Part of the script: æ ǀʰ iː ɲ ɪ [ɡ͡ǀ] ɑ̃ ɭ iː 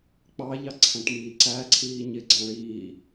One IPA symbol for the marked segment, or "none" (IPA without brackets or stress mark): ɡ͡ǀ